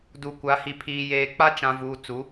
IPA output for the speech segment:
du˨kʷa˨˦hi˨ pʰiː˨jeː˨ k͡pa˦ t͡ʃã˨vuː˨ t͡su˨˦

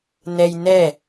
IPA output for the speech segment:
nɛj nɛ

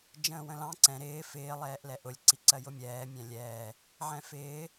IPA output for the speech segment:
d͡ʒə̃ːwə̃lɑ̃ ǀɛ̃ ɾɪː fɪː lˠɛːʔlɛʔʊlʲ ǀiǀɜjʊmʲɛː mʲɛ̃lʲɛː | ʕɛ̃fɪː

